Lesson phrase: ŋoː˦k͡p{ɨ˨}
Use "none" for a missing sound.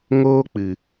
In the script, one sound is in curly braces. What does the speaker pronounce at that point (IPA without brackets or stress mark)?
ɨ˨